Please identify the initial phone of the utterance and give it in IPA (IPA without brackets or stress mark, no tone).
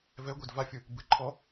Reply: v